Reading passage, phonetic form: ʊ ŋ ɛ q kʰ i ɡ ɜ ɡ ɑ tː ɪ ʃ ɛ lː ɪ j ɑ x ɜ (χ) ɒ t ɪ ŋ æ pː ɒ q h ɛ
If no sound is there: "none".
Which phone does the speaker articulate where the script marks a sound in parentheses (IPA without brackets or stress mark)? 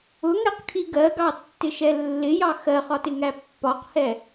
χ